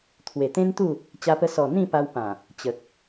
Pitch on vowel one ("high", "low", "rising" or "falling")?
low